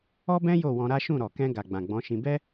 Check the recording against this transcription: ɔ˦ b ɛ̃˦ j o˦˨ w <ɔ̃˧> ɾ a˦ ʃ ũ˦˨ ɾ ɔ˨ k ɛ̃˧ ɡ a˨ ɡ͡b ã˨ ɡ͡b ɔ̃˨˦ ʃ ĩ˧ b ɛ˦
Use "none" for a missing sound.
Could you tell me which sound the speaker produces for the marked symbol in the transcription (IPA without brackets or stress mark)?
ɔ̃˧